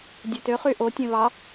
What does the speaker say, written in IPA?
dʲ ø t ø χ y ʔ o tʲ ẽ β ɑ

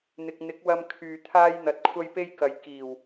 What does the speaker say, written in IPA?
n̪ ɪ˧ k̚ n̪ ɪ˨˥ k̚ w ɐ˧ m kʰ yː˨ t̪ʰ aː˥ j n̪ ɐ˧ t̚ kʷʰ ɐ˥ j p e˥ j k ɐ˨˧ j k iː˨˩ w

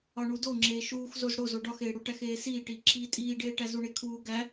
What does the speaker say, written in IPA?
ɒ ɳ u d o ŋ͡ǁ eː ʃ uː x z o z ɽ o z o ɖ ɒ x eː ɽ u ʈ æ x eː s iː ʈ iː ǁ iː tʼ iː ɖ eː ʈ æ z u ɳ e kʰ uː ɡ æ

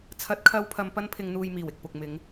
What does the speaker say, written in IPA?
t͡sʰ ɐ˨˥ t̚ kʰ ɐ˨˧ w pʰ ɐ˨ m p ɐ˧ n pʰ ɪ˨ ŋ n̪ uː˨ j m iː˨˩ w ɪ˨ k̚ p ʊ˨ k̚ m ɪ˨˧ ŋ

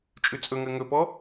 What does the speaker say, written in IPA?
t͡ʃʼ ʉ t͡sʼ ɵ ŋ ɜ ŋ ɵ p ɔ

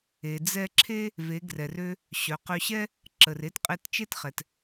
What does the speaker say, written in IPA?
e˩ d͡z ɛ˧ ǁʰ e˥ | v e˩˧ ɡ r ɛ˩ r ø˧ | ɕ œ˩˧ q ø˧ ɕ ɛ˥ | ǁ ə˩ r e˧ t qʼ e˧ t t͡ʃ e˥ t χ ɛ˩ t

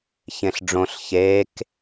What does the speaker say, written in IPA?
ç ẽ ɬ ɖ͡ʐ õ ɬ ç e k

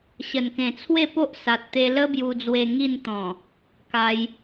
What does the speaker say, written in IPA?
ɕ ə˨˩ n k ẽ˨˩ t͡sʰ w e˥˧ p o˦ ʔ s a˨ t̚ t̪ e˧ l ə˦ b j u˧ d͡z w e˧ ŋ i˥˧ n t̪ ɔ̃˨˩ | k a˧ j

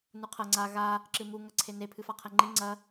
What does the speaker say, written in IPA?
n u qʰ ɐ ŋ͡ǀ a ɣ a | ǁ ɨ m u ŋ ɐ ǀʰ e n e pʰ ɨ f a qʰ ɛ ŋ͡ǃ i ŋ͡ǀ ɐ

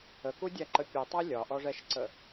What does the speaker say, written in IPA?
ə k u dʲ æ ǃ ə pʲ u tˤ æ lʲ ɒ ʔ ɔ ʐ ɛ ʃ ǀ ə

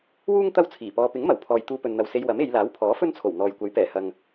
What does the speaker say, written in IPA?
w uː˥ ŋ t̪ ɐ˥ w t͡sʰ iː˨˩ p ɔː˧ p ɪ˨˥ ŋ m ɐ˨˩ w pʰ ɔː˨ j t̪ uː˧ p ɵ˨ n n̪ ɐ˨ w s e˧ j w ɐ˨˥ m e˨˧ j l aː˨˥ w pʰ ɔː˨˥ f ɵ˥ n t͡sʰ o˨˩ w n̪ ɔː˨ j kʷ ɐ˨˥ j p ɛː˨˩ h ɐ˨ ŋ

